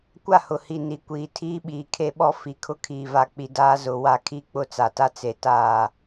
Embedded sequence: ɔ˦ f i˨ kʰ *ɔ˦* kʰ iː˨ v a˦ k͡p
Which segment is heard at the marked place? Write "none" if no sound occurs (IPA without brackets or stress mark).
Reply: ʊ˦